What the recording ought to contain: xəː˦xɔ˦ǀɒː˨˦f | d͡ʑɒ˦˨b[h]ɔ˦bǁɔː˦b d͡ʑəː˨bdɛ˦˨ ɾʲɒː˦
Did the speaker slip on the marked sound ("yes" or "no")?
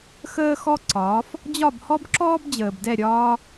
no